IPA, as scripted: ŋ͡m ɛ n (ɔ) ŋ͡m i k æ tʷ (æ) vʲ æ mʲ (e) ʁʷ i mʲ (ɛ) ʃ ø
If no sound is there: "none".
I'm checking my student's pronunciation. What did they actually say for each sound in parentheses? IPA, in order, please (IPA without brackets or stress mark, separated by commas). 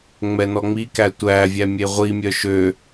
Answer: ɔ, æ, e, œ